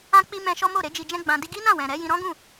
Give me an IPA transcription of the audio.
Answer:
ã˧ k͡p i˧ m ɛ̃˧ ʃ ɔ˦ m o˦˨ ɾ e˨˦ d͡ʒ i˧ d͡ʒ ɛ̃˦ ɡ͡b ã˧ d i˦ ɡ i˦ n ã˦˨ w ɛ̃˨ ɾ ɛ˨˦ j ĩ˧ ɾ ɔ̃˦ ɡ ũ˦˨

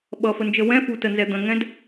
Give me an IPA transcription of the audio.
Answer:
ɓ ʌ f ə n d͡ʒ ə w ɛ̃ f u t ə n z ɛ d̪ ə̃ ŋ ɛ̃ d

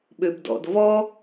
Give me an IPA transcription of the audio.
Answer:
ɓ ø b d ɔ̰ d v ɔ

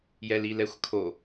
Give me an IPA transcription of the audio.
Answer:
j ɛ l i l ɛ xʷ kʰ o

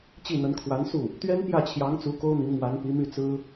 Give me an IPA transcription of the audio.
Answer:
t͡ɕ i˥˩ n̪ ə˧˥ n kʰ w a˧˥ n s u˥˩ | t̪ ɥ ɛ˥ n p j ä˥˩ t͡ɕʰ j ɑ˧˥ ŋ t͡s u˧˥ k o˥ ʊ̯ n̪ i˧˥ ŋ m w a˧˥ n p i˧˥ m y˥˩ t͡s ɹ̩˥

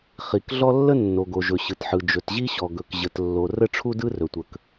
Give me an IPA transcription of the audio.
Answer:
χ i˩ k ɮ ɔ˥ lː ə˥ nː o˩ ɡ o˩ ʒ ɵ˩ ɕ ɯ˩ t ħ ɯ˩ d͡ʒ ɵ˩ t ʑ i˥ ɕ ɔ˩ ɡ ɵ˩ k ʑ ə˩ t lː o˩ r ə˥ ʈ͡ʂʰ u˥ d ɯ˥ r ɵ˩ tʷ ə˩ k

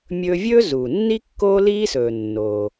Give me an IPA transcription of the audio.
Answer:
mʲ ɵː˧ vʲ ɵː˥ z uː˩ nː i˥ kː oː˥ l iː˥ s ɵː˩ nː oː˩

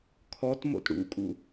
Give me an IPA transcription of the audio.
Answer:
kʰ ɔ t m o̰ t ɽ ṵ kʼ ṵ

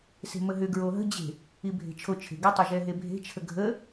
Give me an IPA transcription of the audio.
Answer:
s e̤ m ə ɦ ʏ ɡ ɹ o ɦ ə̤ d͡ʑ e̤ | i bʱ e̤ t͡ʃʰ o t͡ʃʰ e̤ ɡ e tˤ ə ʒ ɛ ɦ e bʱ e̤ t͡ʃʰ ə ɡʱ ə

